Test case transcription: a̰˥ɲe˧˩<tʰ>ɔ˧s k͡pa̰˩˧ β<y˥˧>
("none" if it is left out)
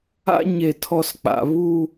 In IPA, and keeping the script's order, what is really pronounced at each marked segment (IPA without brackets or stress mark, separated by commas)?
tʰ, u˥˧